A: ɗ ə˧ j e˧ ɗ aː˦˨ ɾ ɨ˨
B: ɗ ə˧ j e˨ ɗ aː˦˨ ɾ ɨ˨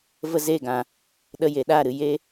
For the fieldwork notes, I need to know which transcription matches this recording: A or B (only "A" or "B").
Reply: B